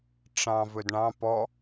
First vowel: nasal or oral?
nasal